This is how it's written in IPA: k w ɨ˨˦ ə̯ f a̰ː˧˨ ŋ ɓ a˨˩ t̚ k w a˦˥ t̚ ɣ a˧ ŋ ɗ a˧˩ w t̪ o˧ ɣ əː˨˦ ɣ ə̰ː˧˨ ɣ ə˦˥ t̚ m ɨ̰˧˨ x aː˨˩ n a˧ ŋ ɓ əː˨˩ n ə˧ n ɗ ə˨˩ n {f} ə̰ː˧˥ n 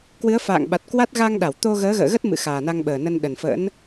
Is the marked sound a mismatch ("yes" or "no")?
no